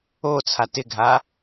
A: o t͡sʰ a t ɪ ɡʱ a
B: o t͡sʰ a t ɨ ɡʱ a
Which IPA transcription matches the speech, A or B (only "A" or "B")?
A